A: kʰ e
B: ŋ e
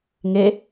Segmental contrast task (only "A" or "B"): B